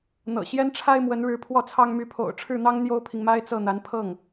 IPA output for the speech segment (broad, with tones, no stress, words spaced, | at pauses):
n̪ɤ̰˨˩ ɕjɛ˥nʈ͡ʂʰa˥ɪ̯mwə˧˥nɻɻ̩˧˥ pʰwɔ˥˩t͡sʰɑ˥ŋ my˧˥pʰo̰˨˩ʊ̯ʈ͡ʂʰɻ̩˥˩n̪ɑ˥ŋ n̪jo˥ʊ̯pʰi˨ŋma˥ɪ̯ t͡sɤ˥˩n̪a˧˥n pʰɤ˥˩ŋ